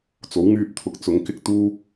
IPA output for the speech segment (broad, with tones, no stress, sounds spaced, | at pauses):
t͡s o˨˥ w ŋ yː˧ p̚ t̪ʰ ʊ˨˥ k̚ t͡s ʊ˨˥ ŋ k ɪ˥ k̚ t̪ uː˥